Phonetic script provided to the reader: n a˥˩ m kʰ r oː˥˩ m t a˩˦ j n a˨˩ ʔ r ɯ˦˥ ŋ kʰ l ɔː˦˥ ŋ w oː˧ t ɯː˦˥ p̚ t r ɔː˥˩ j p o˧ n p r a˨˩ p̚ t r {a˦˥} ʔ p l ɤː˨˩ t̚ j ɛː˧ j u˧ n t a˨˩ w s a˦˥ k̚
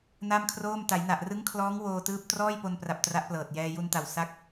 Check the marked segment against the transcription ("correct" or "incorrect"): correct